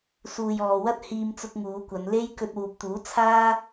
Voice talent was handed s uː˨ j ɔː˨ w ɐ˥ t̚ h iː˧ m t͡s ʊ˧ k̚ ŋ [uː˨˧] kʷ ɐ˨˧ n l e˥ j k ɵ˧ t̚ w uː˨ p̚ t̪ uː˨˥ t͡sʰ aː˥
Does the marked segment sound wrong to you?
no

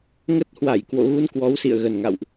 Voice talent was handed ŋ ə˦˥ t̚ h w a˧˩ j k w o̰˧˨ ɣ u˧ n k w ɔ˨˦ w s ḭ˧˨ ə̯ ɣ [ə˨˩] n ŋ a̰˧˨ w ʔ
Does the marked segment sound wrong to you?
no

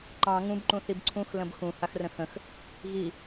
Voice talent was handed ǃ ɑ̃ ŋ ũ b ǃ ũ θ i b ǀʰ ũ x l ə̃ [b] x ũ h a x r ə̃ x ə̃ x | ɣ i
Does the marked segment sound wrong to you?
no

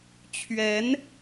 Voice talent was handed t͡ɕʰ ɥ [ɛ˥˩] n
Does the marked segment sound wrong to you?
yes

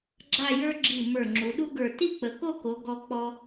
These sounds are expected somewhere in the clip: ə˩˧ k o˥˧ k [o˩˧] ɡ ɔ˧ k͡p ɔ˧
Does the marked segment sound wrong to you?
no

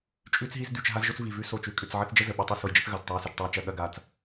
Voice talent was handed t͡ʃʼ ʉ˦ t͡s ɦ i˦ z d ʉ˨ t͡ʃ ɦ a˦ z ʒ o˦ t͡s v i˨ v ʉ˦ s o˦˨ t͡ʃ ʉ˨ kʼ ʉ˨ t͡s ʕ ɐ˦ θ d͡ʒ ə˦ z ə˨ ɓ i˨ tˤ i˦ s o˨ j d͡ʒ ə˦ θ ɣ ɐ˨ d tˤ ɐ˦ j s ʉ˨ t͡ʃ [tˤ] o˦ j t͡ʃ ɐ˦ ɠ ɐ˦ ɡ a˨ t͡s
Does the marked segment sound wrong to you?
no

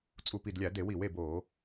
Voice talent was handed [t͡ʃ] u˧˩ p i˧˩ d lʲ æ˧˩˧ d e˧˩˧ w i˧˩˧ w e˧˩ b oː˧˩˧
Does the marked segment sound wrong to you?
yes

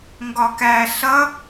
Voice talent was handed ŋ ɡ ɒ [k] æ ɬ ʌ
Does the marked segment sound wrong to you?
no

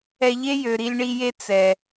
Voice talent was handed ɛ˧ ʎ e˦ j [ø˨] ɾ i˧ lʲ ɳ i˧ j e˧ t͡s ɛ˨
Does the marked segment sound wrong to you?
no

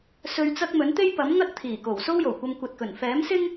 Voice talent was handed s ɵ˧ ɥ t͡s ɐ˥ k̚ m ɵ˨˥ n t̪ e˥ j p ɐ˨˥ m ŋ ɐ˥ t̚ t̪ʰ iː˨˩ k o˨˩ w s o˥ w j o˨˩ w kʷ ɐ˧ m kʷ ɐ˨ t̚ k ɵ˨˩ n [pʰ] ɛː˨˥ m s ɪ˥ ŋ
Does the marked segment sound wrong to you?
yes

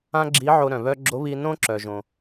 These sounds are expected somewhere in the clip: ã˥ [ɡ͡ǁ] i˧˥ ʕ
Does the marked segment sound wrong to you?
no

